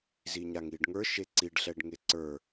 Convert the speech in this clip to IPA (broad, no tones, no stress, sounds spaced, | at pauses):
z i ɲ a ŋ i ɖ ŋ ə˞ ʃ e ǀ i ɖ ɬ ɛ ɖ ŋ e ǀ ə˞